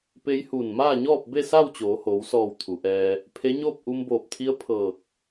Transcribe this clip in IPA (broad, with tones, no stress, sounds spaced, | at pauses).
p e˧ j h uː˧˩ n m aː˥˨ ɲ ɔː˥˨ p̚ b e˥˨ s aː˥˨ w t͡ɕ oː˩˧ h oː˩˧ w s ɔː˧˩ w t̪ʰ u˩˧ ʔ ɛː˧ | pʰ e˧˥ ɲ oː˥˨ p̚ ʔ u˧ m b oː˧˩ p̚ t̪ʰ i˧˥ ə̯ pʰ ɤː˧˩ k̚